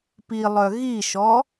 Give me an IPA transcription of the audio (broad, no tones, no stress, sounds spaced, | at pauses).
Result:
p i lˠ œ ɣ i ʃ ɔ